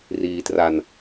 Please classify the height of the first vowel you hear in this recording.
high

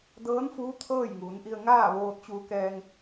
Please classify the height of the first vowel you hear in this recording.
mid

